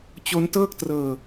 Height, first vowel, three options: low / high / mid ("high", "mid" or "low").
mid